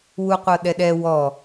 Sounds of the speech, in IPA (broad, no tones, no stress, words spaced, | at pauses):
wuqʷɤɗɛɗɛ wɔ